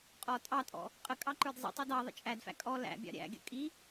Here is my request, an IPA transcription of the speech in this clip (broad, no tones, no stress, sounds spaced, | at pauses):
qʼ ɔ tʼ ɑ tʼ ɔ̰ | qʼ ə kʼ ɑ ǃ ə˞ d zˤ ḭ tˤ i d ɑ ðˤ ə̰ t͡ʃʼ æ d f æ̰ kʼ ɔ l æ̰ bʲ ɑ̰ ɾʲ æ̰ ɡʲ ə̰ kʼ i